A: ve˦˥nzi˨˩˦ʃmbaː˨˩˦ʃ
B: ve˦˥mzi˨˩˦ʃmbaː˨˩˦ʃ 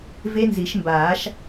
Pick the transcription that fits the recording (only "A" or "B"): A